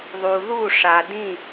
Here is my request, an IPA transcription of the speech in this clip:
ðˤ u˨ ð u˦˨ ʂ a˨ d ĩ˦˨

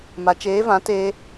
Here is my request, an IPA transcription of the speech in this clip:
m a˨ t͡ʃ eː˨˦ v ã˨˦ t eː˧

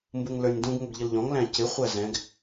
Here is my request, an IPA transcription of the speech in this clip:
m b u ŋ l ə˞ nʲ d ũ ɡ ŋ ʊ ɡ ʎ ə l ʎ ɔ̃ ŋ l æ̃ c ɪ χʷ æ z ɛ̃ ɡ

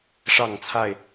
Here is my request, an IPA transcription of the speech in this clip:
ʂ ɑ˥˨ ŋ t͡sʰ a˥˨ ɪ̯

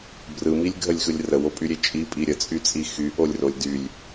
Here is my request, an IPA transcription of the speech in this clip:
b r ɯ m i lʲ ɡʱ ə lʲ x ɯ lʲ r ə w o pʼ y ɾʲ e t͡ʃʼ i pʼ i ɾʲ ə t͡sʼ y t͡sʼ i x y ʔ o lʲ r o lʲ d y lʲ

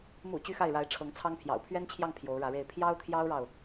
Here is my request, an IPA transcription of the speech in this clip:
m ṵ˨˩ t͡ɕ y˥ x a˥˩ ɪ̯ ɻ a˧˥ ɪ̯ ʈ͡ʂʰ ɤ˧˥ ŋ t͡sʰ ɑ˥ ŋ pʰ j ɑ̰˨˩ ʊ̯ pʰ ɥ ɛ˥ n t͡ɕʰ j ɑ˥˩ ŋ pʰ j o˧˥ ʊ̯ ɻ ä˧˥ ɻ e˥˩ ɪ̯ pʰ j ɑ˥ ʊ̯ t̪ʰ j ɑ˥ ʊ̯ ɻ ɑ˨ ʊ̯

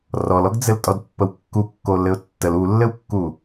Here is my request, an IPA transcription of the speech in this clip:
r ɔ l ɔ ɡ d͡z ɘ l tʼ ɔ d pː ə w kː u kː o l ɘ ʊ̯ tː ə l u lː ɘ w kː u

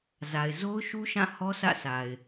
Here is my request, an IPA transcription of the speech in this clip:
z a˨ ɪ̯ z o˦ ʊ̯ ʃ u˦ ʃ ã˦˨ h ɔ˦ s ä̰˦˨ s a˨ ɪ̯

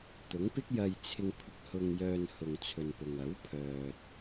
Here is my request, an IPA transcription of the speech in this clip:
t̪ ʊ˨˥ ŋ p ɪ˥ k̚ j ɐ˧ j t͡sʰ ɪ˧ ŋ kʷʰ ɪ˧ k̚ h ʊ˧ ŋ j œː˧ n h ʊ˨ ŋ t͡sʰ ɵ˨ n p ʊ˨ ŋ ɐ˨˥ w pʰ œː˨ t̚

